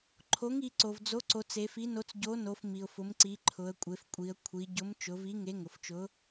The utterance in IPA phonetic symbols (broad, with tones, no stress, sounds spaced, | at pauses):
ǃʰ o˨˥ ŋ i˩˧ ǀ o˩ v d͡z o˨˥ ǀ o˩˧ t͡s e˩˧ f i˨˥ n o˨˥ t͡s ɟ o˨˥ n o˩˧ f m i˩ ʊ̯ f ʊ˩˧ m ǀ i˩˧ ǃʰ ʊ˩˧ ə̯ kʷʼ e˩˧ f kʷʼ i˩˧ ə̯ kʷʰ i˩˧ ɟ ʊ˨˥ m t͡ʃ ʊ˩˧ v i˨˥ ŋ e˨˥ ŋ ʊ˩ f t͡ʃ ʊ˨˥